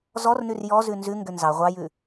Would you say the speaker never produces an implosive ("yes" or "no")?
yes